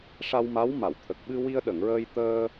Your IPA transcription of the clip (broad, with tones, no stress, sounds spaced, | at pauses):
ʂ a˧ w m a˧˥ w m a˨˩˨ w t̪ʰ ə˨˩ k̚ ɓ ɨ˧ w i˧ ə̯ ɗ ə˨˩˨ ŋ ɹ əː˧ j t̪ əː˧